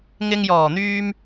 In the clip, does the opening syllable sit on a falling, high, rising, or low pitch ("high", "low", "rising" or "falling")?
low